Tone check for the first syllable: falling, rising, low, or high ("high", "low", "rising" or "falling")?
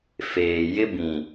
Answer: low